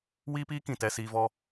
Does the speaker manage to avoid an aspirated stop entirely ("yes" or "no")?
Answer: yes